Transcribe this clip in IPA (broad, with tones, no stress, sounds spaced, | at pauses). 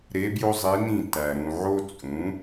ɾ e˧˥ b j o˥ zˤ i˧˥ n ĩ˥˩ t æ˨ ɾ ũ˨ ʕ o˥ t͡sʼ ũ˩˥